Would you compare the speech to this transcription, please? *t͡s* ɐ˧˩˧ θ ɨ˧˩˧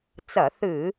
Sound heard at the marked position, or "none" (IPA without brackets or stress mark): t͡s